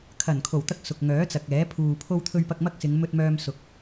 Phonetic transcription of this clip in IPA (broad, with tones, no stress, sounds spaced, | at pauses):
kʰ ɐ˨˩ n kʰ o˨˩ w t̪ ɐ˧ k̚ s ʊ˨ k̚ ŋ œː˨˥ t͡s ɐ˨ k̚ ɛː˨˥ pʰ uː˨ pʰ o˧ w t̪ʰ ɵ˧ ɥ p ɐ˧ k̚ m ɐ˥ k̚ s ɪ˨˧ ŋ m ɵ˧ t̚ m œː˧ m s ʊ˧ k̚